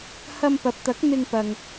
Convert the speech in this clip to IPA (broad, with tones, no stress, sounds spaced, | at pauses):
h ɐ˧ m p ɐ˨ p̚ t̪ ɐ˨˥ k̚ n̪ ɪ˧ ŋ p ɐ˨ ŋ